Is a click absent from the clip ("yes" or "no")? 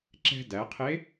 no